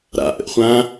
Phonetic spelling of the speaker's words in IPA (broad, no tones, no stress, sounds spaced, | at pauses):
ɾ a̰ ʔ ə̰ ʔ χʷ ã